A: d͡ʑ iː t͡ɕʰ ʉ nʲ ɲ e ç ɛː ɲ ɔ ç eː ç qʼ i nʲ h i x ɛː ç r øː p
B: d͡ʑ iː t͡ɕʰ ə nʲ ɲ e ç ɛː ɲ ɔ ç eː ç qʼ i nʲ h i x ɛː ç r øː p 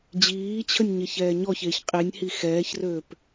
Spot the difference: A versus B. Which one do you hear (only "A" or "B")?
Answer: B